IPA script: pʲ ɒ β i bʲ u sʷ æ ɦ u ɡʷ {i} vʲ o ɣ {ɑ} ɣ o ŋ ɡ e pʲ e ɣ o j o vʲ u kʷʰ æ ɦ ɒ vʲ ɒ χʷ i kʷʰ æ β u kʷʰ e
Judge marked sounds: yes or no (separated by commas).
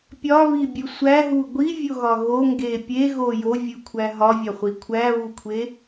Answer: yes, no